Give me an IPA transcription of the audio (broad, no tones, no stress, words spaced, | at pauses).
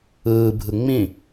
ɯːbʱɯ ŋ͡mĩ